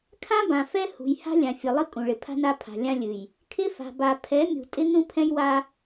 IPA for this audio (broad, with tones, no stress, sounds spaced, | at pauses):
kʰ ã˦ b ã˨ f ɛ˦ h ṳ˨ j h a̤˦ lʲ ã˨ fʲ ɨ˨ lˠ ɨ˦ kʼ ũ˨ ɭ ɪ˨ pʰ a̤˦ n a˦ pʰ a̤˨ lʲ ã˦ lʲ ɨ˨ j | kʰ ɪ˦ f a̤˨ b a˨ pʰ ɛ˨˦ mʲ ṳ˨ tʼ ɪ˦ n ũ˦ pʰ ɛ̃˦ j w a˦